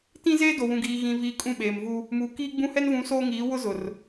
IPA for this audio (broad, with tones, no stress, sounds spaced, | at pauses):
t ĩ˦ z eː˦ d o˨ w ũ˨ ɡ iː˨ ɣ ĩ˨ v iː˨ kʼ ũ˦˨ ɓ eː˨ m v u˦ | m uː˨ k iː˦ ɡ͡b ũ˦ h ɛ˦ n v ũ˨˦ s oː˦ ŋ iː˨˦ w ʊ˦ z ʊ˨ r